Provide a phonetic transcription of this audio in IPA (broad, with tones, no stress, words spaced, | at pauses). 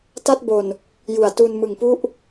ta˥˩t̚bo˨˩n | ju˨˩a̯tu˧n mɯ˨˩ŋpu˥˩ʔ